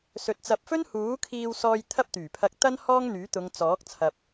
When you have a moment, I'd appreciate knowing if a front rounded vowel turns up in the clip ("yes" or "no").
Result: yes